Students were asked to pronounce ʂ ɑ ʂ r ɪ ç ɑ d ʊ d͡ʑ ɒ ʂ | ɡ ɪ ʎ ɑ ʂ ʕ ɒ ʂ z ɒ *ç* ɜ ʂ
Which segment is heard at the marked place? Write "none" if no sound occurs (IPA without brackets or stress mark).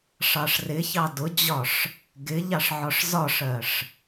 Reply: ʂ